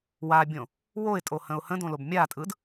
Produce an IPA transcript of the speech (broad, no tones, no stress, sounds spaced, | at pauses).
w a bʲ õ | w o ɪ̯ tʼ o h ə̃ ʊ̯ h ə̃ d õ l o b mʲ a tʼ ɯ d